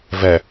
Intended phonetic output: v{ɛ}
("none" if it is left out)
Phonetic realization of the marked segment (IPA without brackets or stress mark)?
ɛ